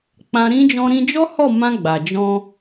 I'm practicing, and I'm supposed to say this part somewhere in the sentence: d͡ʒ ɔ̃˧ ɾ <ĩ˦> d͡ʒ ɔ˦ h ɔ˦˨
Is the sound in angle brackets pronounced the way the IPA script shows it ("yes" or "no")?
no